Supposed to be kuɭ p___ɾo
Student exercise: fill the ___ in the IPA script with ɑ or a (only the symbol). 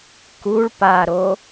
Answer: a